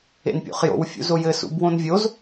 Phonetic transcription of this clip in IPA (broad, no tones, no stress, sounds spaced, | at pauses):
ḛ n pʲ o̰ χ j o̰ w fʲ ṵ z o j ɘ s ṵ b w õ n vʲ o z